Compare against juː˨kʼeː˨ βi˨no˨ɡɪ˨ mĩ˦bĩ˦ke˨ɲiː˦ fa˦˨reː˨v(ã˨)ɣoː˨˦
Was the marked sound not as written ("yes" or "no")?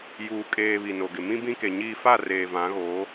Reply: yes